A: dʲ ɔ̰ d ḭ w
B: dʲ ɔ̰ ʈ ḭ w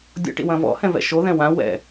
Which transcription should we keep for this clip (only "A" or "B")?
B